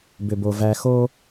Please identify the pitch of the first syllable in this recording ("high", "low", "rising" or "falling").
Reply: low